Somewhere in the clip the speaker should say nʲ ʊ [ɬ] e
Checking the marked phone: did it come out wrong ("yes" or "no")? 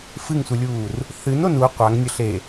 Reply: no